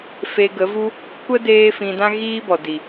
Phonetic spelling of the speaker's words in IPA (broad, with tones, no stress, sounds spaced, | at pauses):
f e˧ ɡ ə˨˦ v u˦ | kʷ ə˦ d eː˦ f ĩ˧ d ã˦ ɣ iː˦ b ɔ˨ d i˨